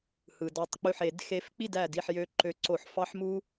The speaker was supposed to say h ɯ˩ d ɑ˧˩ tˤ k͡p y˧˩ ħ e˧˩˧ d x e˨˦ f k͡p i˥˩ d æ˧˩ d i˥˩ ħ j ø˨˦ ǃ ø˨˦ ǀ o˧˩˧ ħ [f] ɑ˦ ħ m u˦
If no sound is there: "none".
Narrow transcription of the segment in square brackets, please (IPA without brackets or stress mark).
f